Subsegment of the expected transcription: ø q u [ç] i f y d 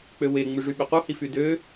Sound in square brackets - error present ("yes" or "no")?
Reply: yes